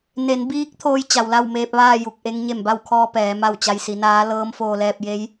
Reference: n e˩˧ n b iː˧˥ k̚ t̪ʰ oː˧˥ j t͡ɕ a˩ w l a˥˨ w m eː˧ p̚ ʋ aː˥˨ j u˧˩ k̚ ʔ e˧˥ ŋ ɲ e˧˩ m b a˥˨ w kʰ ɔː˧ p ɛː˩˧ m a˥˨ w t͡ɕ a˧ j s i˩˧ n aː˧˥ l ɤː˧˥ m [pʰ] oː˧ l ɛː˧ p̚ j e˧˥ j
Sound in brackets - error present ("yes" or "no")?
yes